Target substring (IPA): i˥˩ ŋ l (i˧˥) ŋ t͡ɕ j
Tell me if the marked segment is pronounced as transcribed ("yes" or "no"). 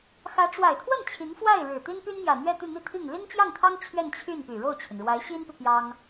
no